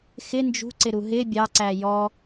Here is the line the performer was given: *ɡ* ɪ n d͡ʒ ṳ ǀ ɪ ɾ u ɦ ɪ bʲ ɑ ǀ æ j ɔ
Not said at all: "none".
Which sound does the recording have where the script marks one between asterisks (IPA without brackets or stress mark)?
x